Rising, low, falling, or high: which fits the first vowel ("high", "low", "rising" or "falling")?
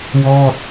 falling